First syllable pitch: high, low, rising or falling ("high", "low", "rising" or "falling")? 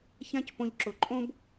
high